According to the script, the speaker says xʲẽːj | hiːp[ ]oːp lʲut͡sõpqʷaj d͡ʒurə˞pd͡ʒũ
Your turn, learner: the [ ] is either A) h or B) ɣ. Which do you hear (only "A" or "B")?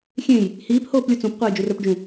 A